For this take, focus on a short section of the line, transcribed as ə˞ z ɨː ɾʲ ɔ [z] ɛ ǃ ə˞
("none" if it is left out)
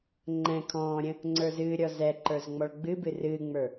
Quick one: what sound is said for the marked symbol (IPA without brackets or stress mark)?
z